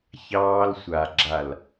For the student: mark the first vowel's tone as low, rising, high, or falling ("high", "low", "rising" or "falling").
high